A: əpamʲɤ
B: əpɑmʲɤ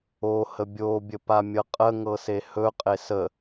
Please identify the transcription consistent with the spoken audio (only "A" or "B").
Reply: A